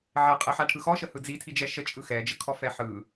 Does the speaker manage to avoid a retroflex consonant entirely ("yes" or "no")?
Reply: no